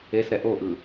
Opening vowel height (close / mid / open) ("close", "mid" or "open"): mid